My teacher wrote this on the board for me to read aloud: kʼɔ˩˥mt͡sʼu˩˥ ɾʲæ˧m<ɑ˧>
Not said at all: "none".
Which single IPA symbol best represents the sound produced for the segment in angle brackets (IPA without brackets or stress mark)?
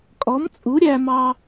ɑ˧